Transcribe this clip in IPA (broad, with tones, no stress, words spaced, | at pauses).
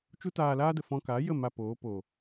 t͡ʃu˦taː˧laː˦də˨ fɔ̃˦ ka˨˦jə˦˨ ma˧poː˨˦ po˨